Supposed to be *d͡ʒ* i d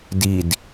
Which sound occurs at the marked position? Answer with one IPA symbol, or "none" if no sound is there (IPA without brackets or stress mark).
d